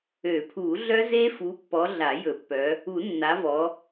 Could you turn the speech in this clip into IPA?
ø˨˩˦ pʰ u˨˩˦ ɮ œ˦˥ z e˦˥ f u˨˦ pː ɔ˨˦ ɮ a˨˩˦ j ɵ˨˩˦ pː œ˨˦ | u˨˩˦ nː a˨˦ v ɔ˨˦

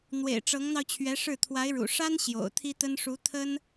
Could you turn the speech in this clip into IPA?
n̪ w ḛ˨˩ ɪ̯ ʈ͡ʂ ɤ˧˥ ŋ n̪ ɑ˧ ʊ̯ t͡ɕʰ ɥ ɛ˧˥ ʂ ɻ̩˥˩ t̪ʰ w a˧˥ ɪ̯ ɻ ṵ˨˩ ʂ a˥ n ɕ j o̰˨˩ ʊ̯ t̪ʰ i˥ t̪ ə˥ n ʂ u˧˥ t̪ʰ ə˥ n

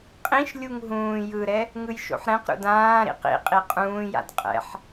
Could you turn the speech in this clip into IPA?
qʼ ĩ ʃ lʲ u ŋ ɦ ũː j ɯ ɾ ɛ | ŋ ɯ j ʃ o̰ ħ ɾ ɛ̃ q ɾ ṵ d ãː ɾ ḭ q ḭ qʼ i qʼ ũː j a̰ d qʼ ɛ̰ ħ

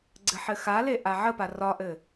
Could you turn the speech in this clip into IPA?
ɡ͡ǀ ɘ ħ ɘ x a l e ʔ a ʕ ə p a r ɒ ʔ ɘ

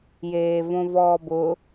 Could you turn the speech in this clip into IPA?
j eː v õ v ɔː b ʊ

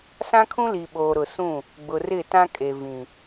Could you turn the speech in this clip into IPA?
s ã˦ kʰ ũ˦ l i˨ ɓ oː˨ ɾ ʊ˨ s ũ˦˨ | ɡ͡b ʊ˨ r ɪ˦˨ t ã˦ kʼ e˨ v ĩ˨

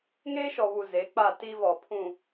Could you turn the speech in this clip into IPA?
ŋ eː˦ ʃ ɔ˨ β u˨ z e˨˦ k͡p a˦˨ t i˦ v ɔ˨ pʰ ũ˨

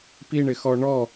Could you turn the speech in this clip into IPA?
p i ɳ ɪ x ɔ ɳ ɔ

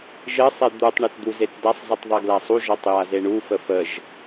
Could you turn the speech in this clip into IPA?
ʒ ɘ sˤ e d̪ u tˤ ɳ e t d̪ u z e t d a sˤ z ɘ tˤ ðˤ e ɡ l a sˤ u ʒ ɔ tˤ j a z e ɳ u f ə f ə ʒ

